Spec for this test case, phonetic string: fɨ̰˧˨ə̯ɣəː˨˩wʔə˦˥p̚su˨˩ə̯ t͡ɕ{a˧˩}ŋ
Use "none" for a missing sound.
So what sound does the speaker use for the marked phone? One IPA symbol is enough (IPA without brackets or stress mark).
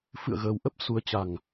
a˨˩